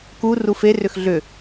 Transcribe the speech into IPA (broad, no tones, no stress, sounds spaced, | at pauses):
k u r u f e r ʏ x ɮ ʏ